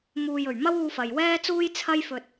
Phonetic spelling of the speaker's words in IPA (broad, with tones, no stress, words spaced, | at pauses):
muː˨jɵ˨˩ɥ mɐ˥wuː˧fɐ˨j wɛː˥t͡suː˥j t͡sʰɐ˥jfɵ˧t̚